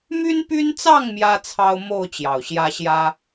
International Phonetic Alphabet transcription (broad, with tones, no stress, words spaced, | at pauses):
my˦npy˦nt͡sɑ˥˨ŋ mjä˦t͡sʰɑ˦ʊ̯ mo˥˨ʊ̯ t͡ɕjɑ˨˩ʊ̯ɕjä˦ɕjä˦